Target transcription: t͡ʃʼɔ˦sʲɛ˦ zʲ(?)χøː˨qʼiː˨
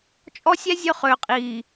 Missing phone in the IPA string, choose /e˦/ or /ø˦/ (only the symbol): ø˦